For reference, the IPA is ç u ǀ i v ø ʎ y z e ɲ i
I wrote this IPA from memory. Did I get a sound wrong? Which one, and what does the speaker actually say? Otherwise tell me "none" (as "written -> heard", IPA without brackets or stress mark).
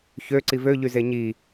u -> ø